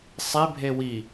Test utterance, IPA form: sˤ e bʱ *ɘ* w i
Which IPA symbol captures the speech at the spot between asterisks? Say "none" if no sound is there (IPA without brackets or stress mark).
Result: e